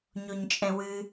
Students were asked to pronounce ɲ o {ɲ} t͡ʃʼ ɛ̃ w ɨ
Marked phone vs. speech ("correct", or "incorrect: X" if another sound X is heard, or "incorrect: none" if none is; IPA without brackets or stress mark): correct